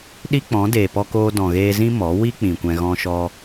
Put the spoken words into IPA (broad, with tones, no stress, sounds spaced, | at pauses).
ɗ i˦ k͡p ɔ̃˨˦ d eː˨ p ɔ˧ k oː˧ d ɔ̃˨ ɣ eː˧ z ĩ˦ m ɔ˨˦ w i˦ k͡p ĩ˨ kʷ ɛ̃˧ ɣ ɔ̃˧ ʃ ɔ˧